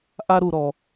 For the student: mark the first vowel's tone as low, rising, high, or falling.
high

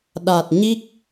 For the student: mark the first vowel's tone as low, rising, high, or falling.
low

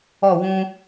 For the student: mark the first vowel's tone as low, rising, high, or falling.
falling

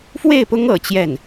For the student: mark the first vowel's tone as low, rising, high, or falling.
falling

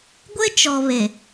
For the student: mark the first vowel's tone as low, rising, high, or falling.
high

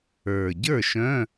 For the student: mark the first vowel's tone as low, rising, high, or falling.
low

